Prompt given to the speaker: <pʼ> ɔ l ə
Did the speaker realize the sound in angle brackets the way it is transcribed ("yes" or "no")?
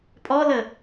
yes